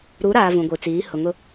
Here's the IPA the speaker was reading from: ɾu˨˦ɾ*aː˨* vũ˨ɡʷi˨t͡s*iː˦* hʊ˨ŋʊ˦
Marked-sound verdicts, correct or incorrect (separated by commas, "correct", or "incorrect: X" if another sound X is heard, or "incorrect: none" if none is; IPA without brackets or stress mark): correct, incorrect: iː˨˦